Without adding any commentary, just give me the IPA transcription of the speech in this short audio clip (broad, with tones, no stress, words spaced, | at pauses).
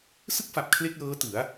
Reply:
sɯ˥˩k̚fa˨˩p̚ kʰle˥˩k̚lɤː˦˥tɯ˩˦a̯